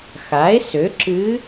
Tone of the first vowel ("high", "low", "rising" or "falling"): rising